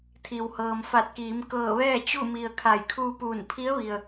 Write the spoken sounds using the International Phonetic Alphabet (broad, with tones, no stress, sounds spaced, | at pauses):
t̪ʰ i˩ w h ɤː˩ m f a˧˩ t̚ k iː˩˧ m k ɤː˧˩ ʋ ɛː˥˨ t͡ɕ u˥˨ m i˩ ə̯ kʰ a˧˩ j kʰ uː˧ p uː˧˩ n pʰ i˧˥ ə̯ ʋ i˩ ə̯